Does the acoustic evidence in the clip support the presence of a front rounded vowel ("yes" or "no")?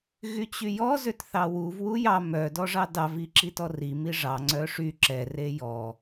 yes